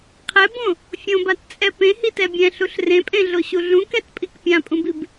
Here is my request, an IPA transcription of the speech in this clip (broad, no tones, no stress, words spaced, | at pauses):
qʰɛbõ | fʲõbatt͡sʼɛ pẽhitɛ bʲɛ̃ɬuɬ rẽpʼẽɮoɕu ɮũkɛtpʼik pʲãpʼũbib